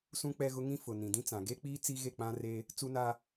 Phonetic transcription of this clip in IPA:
sũ˦k͡pɛ˦ɣʊ˦ŋĩ˦ fʊ˨nĩ˨dĩ˦t͡sã˨ ɡe˦k͡piː˦ t͡si˦ɣe˦˨k͡pã˦re˦ | t͡su˦na˦

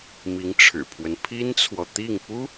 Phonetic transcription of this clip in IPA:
mi˧˥ŋʈ͡ʂʰɻ̩˨˩pʰwə˦n pʰi˥nt͡sʰwɔ˨t̪i˥˩ŋ pu˥

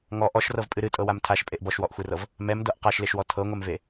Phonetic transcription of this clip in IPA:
ŋɔ ʔɔʃrɤvpʼɨ ɾɨtʼɤwam tʰaʃpʼeʔ bɔʃwɔʔxʷerɤv | mɛmdɤʔ qaʃleʃwɔ tʰɤŋʷɛmve

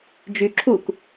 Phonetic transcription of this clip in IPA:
d͡ʒyǁʰuk

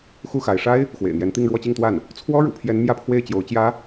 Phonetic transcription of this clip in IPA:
xu˥˩xa˧˥ɪ̯ ʂa˥ɪ̯ | xwḛ˨˩ɪ̯n̪jɛ˧˥nt̪i˥˧ŋ ɻwɔ˥˧t͡ɕi˥˧ŋt̪wa˥˩n | t͡sʰwɔ˥ɻṵ˨˩pʰjɛ˧˥n mjä˥˧pʰwe˥˩ɪ̯ t͡ɕjo˧˥ʊ̯ t͡ɕjä˧˥

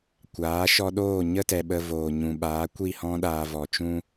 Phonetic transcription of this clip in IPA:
kʷaː˨˦ʃɔ˧ɗoː˦˨ ɲə˦tɛ˨ ɓə˧voː˨ɲũ˨ ɓaː˨˦kʷi˦˨hɔ̃˦ ɗaː˧vɔ˨t͡ʃũ˦

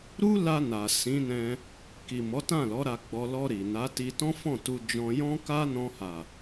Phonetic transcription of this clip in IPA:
ɾu˦la˧na˨ sĩ˨˦nɛ̃˧ | ki˨mɔ˨˦tã˦˨lɔ˨˦ ɾa˧ɡ͡bɔ˧ lɔ˧ɾi˨ na˨˦ti˧ tɔ̃˦fɔ̃˦˨tu˧ d͡ʒɔ̃˧ jɔ̃˦ka˦nɔ̃˧ ha˨

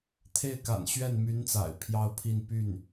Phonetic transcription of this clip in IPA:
t̪ʰe˥˩ɪ̯ka̰˨˩nɕɥɛ˥˩n my˧˥n t͡sa̰˨˩ɪ̯pʰjɑ˥ʊ̯pʰi˥˧n py˥˩n

